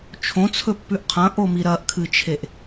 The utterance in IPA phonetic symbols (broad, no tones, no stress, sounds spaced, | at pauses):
t͡ʃʰ õ t͡sʰ ɵ pː ʉ ʔ qʰ ɐ̃ ʔ o m i ɾ ɐ ʔ kʰ ɨ t͡ʃʰ e ʔ